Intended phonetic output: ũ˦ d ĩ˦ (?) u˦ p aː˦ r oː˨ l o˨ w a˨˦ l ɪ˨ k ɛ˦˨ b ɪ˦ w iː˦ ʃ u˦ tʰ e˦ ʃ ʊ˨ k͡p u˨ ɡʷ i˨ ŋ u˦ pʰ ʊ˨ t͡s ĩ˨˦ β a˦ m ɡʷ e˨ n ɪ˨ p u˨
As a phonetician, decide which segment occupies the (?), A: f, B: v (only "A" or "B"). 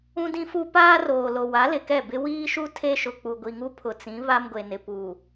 A